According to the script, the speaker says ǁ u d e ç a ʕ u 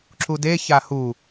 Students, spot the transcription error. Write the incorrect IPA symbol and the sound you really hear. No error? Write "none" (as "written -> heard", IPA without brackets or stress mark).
ʕ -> h